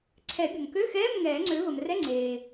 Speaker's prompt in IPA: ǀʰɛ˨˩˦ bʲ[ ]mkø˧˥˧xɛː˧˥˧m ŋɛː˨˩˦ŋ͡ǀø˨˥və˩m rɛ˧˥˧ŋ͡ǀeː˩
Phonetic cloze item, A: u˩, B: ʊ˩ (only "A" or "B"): B